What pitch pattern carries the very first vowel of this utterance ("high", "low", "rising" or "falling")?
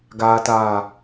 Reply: low